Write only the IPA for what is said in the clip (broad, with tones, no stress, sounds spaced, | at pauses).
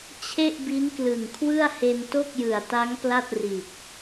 t͡ɕʰ e˥˩ ʔ b i˦˥ n k l ɯ˨˩ ŋ kʰ w ɯ˥˩ a̯ h e˧ n t o˥˩ k̚ j ɯ˨˩ a̯ t a˦˥ ŋ p l a˥˩ t̚ r i˨˩ t̚